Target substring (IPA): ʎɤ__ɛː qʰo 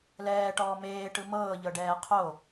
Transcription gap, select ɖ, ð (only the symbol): ɖ